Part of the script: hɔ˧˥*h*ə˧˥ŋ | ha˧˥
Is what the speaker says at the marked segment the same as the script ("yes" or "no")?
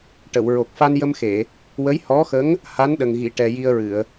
no